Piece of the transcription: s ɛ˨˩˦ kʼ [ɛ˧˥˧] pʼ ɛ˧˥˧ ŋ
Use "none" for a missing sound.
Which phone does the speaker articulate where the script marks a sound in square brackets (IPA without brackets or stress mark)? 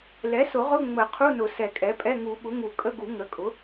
ɛ˩˥